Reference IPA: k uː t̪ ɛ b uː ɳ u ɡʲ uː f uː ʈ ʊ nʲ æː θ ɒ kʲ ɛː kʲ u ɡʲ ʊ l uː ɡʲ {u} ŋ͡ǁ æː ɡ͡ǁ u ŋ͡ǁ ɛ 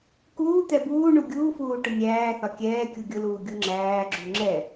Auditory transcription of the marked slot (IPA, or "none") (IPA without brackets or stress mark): u